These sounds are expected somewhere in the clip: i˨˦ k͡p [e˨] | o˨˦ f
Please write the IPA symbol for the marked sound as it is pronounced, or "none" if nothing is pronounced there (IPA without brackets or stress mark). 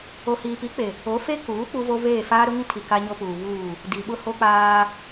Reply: e˨